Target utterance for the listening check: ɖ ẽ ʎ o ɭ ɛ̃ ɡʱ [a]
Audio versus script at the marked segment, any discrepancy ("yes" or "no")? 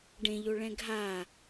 no